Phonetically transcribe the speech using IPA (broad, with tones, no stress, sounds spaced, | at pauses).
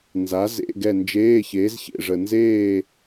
n z a˨˥ z ḛ˧˥˧ ɡ ɛ˦˨ n d͡ʒ eː˧˥˧ ç eː˨˥ z ç ḛ˦˨ ʐ ə˨ n z eː˦˨